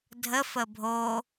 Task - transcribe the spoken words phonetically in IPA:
dʱ ə f ə bʱ o

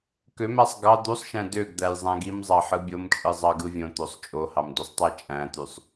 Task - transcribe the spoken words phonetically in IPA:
k ø m æ sˤ ɡ ɑ d̪ u sˤ ʃ æ̃ d ø ɡ d̪ æ j zˤ æ̃ ɡ i m zˤ ɑ ħ ɯ bʲ o m t͡ʃʼ ɯ zˤ ɑ ɡ ɯ vʲ õ t̪ o sˤ t͡ʃʼ o h ɑ m d u sˤ tˤ æ t͡ʃʼ æ̃ t̪ y sˤ

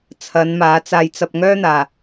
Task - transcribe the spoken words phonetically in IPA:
t͡sʰ ɐ˨˧ n m aː˨˧ t͡s aː˧ j t͡s ɐ˧ p̚ ŋ œː˥ n̪ aː˧

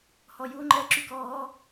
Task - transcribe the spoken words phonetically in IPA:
h ɔ j u ŋ͡ǃ ɛ ǁ y k ɔː

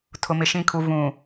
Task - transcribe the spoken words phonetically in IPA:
tʰ ʊ˨ m ɪ˨ ʃ ĩ˨ kʰ u˨ v ũ˨

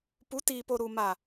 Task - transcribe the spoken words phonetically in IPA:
p u˨˦ t iː˨ p o˨ ɾ u˨ m a˨

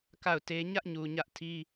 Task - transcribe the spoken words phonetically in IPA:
k a˦˨ ʊ̯ t e˦ ɲ ä˦ ʔ ɲ u˨ ɲ ä˦ ʔ tʰ i˦

